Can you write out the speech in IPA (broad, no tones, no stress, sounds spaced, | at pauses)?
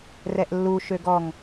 r ɛ ʔ lː u ʃ ø ɡ ɔ ŋ